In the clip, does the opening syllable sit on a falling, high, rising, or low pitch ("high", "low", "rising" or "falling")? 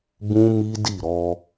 high